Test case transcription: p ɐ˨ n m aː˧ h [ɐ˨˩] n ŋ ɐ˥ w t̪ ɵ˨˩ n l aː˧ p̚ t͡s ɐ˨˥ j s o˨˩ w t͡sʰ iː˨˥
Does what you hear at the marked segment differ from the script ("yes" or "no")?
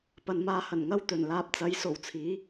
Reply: no